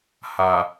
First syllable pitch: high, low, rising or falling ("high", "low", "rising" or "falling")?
low